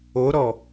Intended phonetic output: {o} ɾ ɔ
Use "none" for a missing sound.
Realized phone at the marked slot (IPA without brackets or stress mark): o